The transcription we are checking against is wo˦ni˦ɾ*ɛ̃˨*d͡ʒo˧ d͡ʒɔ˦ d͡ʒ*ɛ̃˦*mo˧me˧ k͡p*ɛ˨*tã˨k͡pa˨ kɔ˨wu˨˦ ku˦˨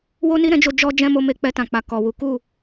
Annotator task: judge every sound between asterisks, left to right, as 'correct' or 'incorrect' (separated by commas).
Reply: incorrect, correct, incorrect